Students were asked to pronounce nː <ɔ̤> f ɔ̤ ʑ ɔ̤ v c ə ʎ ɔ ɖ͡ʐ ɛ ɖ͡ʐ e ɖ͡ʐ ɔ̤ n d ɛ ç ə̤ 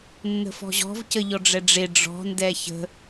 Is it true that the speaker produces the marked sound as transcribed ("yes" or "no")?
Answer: no